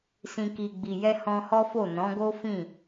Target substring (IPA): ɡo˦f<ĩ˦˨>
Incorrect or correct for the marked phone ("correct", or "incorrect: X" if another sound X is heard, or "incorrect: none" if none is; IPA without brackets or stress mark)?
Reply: correct